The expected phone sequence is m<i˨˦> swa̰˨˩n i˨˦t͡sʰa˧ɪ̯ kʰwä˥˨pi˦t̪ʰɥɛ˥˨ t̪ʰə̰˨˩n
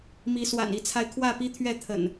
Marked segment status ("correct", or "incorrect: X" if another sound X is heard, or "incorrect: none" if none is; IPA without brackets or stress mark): correct